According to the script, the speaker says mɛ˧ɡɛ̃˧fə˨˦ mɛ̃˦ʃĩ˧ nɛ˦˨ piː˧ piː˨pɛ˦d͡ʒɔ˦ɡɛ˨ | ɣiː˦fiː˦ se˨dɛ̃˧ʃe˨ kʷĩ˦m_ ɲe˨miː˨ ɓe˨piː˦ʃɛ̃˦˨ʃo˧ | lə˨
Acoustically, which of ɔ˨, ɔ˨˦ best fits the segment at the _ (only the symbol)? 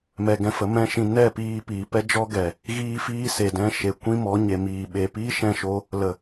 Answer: ɔ˨˦